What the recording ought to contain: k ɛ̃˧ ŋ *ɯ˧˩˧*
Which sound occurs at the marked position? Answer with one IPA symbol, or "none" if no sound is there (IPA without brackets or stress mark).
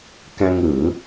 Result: ɯ˧˩˧